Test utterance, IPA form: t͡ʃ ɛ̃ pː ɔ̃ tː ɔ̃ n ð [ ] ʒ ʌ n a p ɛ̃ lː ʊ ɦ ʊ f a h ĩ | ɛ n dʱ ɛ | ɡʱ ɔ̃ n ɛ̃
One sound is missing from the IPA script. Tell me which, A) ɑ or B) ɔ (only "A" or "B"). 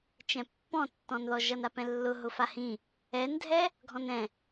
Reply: B